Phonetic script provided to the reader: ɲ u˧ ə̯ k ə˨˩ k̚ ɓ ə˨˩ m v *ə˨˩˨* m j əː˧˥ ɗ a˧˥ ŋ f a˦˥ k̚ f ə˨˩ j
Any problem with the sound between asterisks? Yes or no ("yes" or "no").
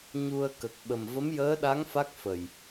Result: yes